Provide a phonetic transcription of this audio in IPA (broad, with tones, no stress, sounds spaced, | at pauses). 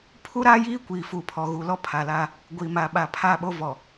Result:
pʰ u˦ ɾ aː˦ j iː˦ kʷ iː˨ f u˨ pʰ ɔ˨ ɣ u˨ l ɔ˦ pʰ a˨ l aː˦ | ɡʷ i˨ m a˨ ɓ a˨ pʰ a˦˨ ɓ o˦ v ɔ˨